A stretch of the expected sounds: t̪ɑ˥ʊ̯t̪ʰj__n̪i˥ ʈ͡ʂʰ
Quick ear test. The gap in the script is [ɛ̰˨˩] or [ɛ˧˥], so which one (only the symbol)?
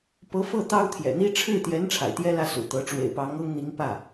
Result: ɛ̰˨˩